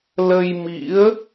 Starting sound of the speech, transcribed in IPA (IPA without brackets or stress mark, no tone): l